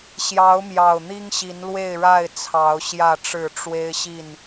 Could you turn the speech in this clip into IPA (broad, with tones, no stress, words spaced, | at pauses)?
ɕjɑ˨˦ʊ̯mjɑ˨˩ʊ̯ n̪i˦ŋɕi˨˦nlwe˥˨ɪ̯ɻa˥˨ɪ̯ t͡sʰɑ˨˦ʊ̯ ɕjä˥˨ʈ͡ʂɻ̩˥˨ ʈ͡ʂwe˦ɪ̯ɕi˥˨n